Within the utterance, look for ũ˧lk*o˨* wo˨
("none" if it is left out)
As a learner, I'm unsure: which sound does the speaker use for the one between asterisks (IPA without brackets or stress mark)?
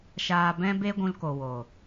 o˨